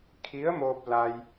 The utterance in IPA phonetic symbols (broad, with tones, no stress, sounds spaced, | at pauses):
kʰ i˧˥ ə̯ m oː˧ p̚ l a˧ j